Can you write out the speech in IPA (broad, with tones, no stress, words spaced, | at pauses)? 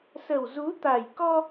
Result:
sə˨˩wzu˨˦ t̪a˨˩jkɔ˧